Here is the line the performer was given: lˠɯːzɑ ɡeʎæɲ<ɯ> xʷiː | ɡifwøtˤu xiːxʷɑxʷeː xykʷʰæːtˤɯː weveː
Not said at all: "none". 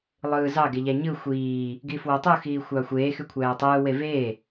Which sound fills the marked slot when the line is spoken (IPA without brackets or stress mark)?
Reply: ɯ